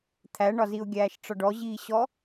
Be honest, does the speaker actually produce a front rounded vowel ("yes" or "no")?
no